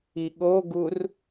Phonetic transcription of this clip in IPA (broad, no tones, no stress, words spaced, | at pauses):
iɠoɡur